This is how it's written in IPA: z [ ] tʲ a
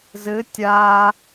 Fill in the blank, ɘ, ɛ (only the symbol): ɘ